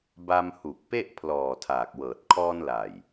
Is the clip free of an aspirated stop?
no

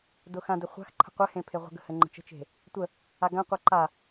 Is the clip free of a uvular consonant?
no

